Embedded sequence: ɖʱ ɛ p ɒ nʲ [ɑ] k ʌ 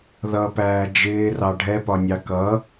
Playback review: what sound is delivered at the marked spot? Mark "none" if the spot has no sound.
ɑ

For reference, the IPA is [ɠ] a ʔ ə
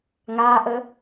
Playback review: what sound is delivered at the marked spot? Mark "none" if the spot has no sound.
ŋ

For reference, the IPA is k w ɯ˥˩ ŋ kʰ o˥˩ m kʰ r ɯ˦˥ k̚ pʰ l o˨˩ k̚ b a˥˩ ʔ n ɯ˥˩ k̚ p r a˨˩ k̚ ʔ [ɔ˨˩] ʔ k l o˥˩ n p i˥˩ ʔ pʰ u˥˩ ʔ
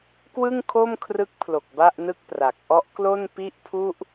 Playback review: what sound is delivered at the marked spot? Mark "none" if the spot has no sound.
ɔ˦˥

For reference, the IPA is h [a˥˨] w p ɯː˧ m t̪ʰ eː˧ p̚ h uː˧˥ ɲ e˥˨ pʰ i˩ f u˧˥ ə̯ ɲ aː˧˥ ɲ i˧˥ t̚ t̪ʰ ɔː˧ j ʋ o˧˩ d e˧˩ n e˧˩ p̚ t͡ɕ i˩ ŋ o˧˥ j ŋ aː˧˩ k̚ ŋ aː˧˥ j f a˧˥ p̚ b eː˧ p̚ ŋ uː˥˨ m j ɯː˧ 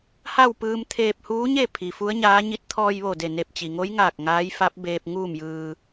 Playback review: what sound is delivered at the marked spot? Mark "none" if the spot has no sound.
a˥˨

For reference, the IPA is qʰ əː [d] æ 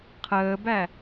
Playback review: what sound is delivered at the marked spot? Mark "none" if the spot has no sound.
b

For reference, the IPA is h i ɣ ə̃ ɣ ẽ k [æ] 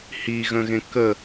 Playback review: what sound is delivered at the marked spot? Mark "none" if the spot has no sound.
ə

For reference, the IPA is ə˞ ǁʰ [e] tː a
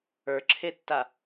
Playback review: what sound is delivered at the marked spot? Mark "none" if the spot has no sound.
e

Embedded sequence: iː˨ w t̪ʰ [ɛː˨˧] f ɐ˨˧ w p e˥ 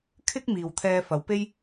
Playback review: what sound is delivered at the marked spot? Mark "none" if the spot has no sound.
ɛː˧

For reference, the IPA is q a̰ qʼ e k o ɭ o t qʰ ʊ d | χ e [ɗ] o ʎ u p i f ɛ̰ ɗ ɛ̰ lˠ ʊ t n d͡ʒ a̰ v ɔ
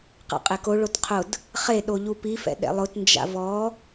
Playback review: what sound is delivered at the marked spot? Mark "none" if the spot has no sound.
ɗ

